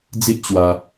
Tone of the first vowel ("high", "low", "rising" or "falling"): high